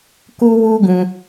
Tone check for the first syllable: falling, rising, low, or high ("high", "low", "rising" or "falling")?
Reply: high